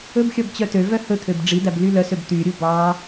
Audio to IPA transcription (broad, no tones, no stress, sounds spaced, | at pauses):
ɵ b xʲ ɔ b t͡ɕ œ t ø v œ h ɵ t̪ʰ ø b ɖ͡ʐ i d̪ æ b l y l œ s ø b t̪ y ɾʲ u b ɑ